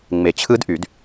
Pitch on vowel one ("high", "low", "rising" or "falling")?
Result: low